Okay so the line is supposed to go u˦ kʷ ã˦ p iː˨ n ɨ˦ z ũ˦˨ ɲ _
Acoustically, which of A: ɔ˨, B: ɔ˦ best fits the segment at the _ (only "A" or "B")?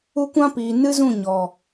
A